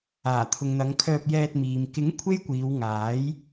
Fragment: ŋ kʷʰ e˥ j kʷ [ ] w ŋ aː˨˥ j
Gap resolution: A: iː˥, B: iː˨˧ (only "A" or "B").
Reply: B